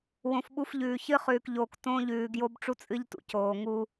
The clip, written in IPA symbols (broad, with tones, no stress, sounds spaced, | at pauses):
w õ˨ f ɓ u˦ f ʎ ʉː˨ ç ɨ˦ χ ʉː˨ k ʎ oː˨ k t õː˦ ʎ ʉː˨ ɡ j o˦ b ʈ͡ʂ u˦ t͡sʼ ɨ˦ ʎ t ṵ˨ c oː˨ ŋ u˦